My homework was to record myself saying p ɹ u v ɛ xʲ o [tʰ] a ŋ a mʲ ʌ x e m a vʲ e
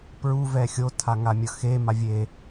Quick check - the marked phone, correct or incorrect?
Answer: correct